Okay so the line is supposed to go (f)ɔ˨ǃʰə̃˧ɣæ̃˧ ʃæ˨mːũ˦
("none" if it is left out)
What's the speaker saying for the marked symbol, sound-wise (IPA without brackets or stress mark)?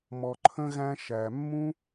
m